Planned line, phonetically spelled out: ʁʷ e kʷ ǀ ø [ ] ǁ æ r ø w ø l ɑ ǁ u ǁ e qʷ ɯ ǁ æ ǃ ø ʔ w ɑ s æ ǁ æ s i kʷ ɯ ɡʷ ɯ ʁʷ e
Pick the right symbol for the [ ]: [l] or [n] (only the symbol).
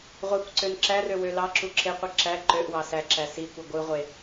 n